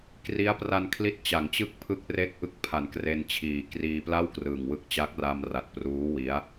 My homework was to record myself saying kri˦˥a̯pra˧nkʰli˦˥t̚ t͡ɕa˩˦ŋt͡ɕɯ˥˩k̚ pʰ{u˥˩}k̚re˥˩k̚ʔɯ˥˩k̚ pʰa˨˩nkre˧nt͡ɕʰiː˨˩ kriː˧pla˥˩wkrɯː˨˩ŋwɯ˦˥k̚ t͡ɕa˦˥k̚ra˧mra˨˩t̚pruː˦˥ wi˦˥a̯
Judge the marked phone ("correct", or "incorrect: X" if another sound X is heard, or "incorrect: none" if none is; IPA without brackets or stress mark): incorrect: ɯ˥˩